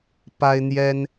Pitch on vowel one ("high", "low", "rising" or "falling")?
high